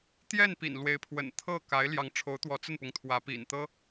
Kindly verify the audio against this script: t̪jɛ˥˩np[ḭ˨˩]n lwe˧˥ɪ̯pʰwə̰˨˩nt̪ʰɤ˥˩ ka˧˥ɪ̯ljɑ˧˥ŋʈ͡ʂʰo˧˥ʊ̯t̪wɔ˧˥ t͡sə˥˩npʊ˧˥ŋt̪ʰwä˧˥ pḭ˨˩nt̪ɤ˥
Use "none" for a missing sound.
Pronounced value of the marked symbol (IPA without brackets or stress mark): ḭ˨˩